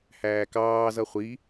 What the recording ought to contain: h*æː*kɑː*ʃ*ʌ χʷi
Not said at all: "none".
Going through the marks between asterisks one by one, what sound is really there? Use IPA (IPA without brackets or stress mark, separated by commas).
æː, z